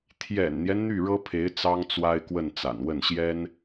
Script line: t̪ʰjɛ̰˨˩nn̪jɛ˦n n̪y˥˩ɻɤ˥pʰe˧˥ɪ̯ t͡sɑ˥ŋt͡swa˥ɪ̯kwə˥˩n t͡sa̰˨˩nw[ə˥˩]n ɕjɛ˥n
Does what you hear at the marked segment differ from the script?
no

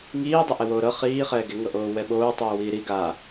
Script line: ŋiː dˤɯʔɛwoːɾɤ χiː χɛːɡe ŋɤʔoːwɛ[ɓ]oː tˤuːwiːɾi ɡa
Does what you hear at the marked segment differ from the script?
no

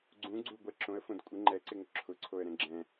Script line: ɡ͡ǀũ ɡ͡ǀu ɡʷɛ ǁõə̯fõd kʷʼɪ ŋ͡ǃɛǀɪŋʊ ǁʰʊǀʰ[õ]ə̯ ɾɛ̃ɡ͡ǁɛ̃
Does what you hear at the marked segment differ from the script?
yes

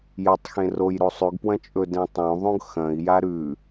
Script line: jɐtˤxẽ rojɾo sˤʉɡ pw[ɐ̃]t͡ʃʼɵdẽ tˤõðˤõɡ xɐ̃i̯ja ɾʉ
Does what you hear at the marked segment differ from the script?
no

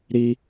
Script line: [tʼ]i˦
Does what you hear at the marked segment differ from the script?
yes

